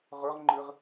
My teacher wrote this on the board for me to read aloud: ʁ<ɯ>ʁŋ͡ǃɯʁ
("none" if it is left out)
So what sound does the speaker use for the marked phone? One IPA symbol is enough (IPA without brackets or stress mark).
ʊ